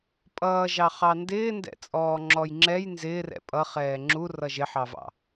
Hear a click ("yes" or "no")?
yes